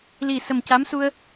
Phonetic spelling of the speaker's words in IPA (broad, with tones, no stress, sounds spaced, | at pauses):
l i˨˩ s ə˨˩ m c a˧˥ m s u˧ ə̯